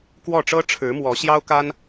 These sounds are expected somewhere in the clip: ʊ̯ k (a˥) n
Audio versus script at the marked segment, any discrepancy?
no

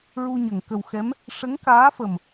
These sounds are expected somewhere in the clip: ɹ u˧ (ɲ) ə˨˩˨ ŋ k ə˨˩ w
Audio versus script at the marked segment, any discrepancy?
no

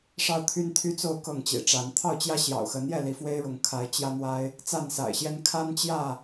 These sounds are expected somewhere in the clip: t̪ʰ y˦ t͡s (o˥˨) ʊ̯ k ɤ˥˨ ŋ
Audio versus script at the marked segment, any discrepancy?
no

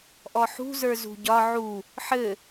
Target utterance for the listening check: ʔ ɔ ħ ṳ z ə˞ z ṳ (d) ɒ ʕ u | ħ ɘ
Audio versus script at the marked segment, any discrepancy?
yes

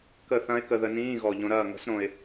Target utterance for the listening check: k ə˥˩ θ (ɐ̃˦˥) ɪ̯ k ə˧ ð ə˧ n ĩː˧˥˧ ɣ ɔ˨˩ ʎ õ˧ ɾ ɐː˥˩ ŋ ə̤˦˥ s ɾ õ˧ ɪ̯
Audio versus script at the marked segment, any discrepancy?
no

